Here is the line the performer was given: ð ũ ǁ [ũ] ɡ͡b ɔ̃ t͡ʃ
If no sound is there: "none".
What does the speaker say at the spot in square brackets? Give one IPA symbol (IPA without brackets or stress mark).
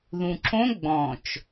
õ